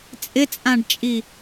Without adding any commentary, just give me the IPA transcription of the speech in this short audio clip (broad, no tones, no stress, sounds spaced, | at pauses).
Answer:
t͡sʼ ɪ t͡sʼ ã ɖ t͡ʃʼ i